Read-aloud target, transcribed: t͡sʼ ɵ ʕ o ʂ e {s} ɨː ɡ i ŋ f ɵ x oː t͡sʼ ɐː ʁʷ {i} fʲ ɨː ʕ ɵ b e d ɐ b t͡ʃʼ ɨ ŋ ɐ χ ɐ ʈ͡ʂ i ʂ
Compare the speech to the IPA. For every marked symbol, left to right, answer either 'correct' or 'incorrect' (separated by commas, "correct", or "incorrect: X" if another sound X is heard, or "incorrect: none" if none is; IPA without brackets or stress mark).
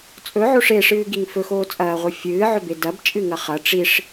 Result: incorrect: ʂ, incorrect: ɨ